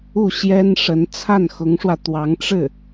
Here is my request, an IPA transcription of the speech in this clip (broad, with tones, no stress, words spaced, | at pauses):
u˥˩ɕjɛ˥n ʂə˧˥n t͡sʰa˥˩nxʊ˧˥ŋʂwä˧t̪wɑ˧˥ŋ ʈ͡ʂɻ̩˥˩